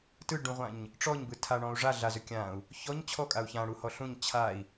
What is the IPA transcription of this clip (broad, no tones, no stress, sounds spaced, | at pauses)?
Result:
t ɯ ɖ ũ ʁʷ ã ɲ | ʈ͡ʂ ɔ ɲ b ɯ tʰ a ɳ ɔ̃ u̯ ʐ a ɮ a z ʏ kʲ ã u̯ | ç ɔ ɲ t͡ɕʰ ɔ kʼ a u̯ ç ã ɽ u h ɔ ɬ ũ ɲ t͡ɕʰ a i̯